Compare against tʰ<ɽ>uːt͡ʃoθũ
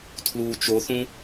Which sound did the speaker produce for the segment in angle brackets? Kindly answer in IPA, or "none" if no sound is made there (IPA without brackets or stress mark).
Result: l